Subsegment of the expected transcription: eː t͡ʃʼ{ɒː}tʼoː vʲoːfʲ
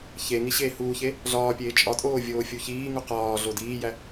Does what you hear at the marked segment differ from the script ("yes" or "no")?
yes